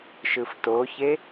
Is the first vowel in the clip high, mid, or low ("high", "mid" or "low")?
high